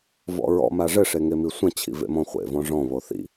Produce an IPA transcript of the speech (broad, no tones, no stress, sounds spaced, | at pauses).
v ɔ̰ ɹ ɔ̰ m a ʐ ɘ ʂ e ŋ e m i sʷ ɐ̃ t͡ɕʰ ḭ v ḛ m ɔ̃ χʷ ḛ v ɔ̃ ʐ ɔ̃ β o θ ḭ